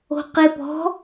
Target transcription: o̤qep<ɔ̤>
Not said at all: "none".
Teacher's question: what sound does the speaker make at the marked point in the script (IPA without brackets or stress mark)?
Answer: ɔ̤